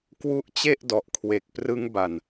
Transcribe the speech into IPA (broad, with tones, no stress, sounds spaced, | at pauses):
k w u˦˥ ʔ t͡ɕ e˥˩ ʔ d ɔ˨˩ ʔ kʰ w e˨˩ k̚ p r ɯ˦˥ ŋ b a˨˩ n